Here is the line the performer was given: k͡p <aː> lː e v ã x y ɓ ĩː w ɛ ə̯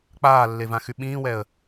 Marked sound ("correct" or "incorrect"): correct